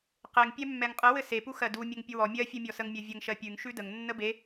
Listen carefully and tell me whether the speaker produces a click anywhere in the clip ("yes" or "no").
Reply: no